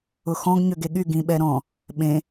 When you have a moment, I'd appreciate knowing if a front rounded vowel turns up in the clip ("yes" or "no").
yes